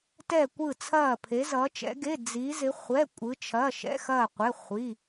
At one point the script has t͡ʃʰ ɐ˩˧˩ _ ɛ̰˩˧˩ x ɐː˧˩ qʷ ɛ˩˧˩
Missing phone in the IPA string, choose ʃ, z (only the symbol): ʃ